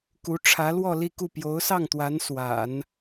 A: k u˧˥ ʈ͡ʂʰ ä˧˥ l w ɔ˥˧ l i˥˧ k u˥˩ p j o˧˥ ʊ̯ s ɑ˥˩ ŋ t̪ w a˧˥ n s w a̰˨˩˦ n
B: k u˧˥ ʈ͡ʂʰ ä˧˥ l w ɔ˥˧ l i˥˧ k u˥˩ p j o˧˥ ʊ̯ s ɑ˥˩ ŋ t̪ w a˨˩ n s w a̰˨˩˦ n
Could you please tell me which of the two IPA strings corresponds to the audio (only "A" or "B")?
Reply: A